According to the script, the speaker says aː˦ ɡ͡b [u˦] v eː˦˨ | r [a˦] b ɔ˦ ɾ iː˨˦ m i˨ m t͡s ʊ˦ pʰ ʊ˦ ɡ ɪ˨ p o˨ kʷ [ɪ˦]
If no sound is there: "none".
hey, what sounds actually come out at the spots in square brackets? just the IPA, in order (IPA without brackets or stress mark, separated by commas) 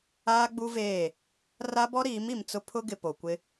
u˦, a˦, ɪ˦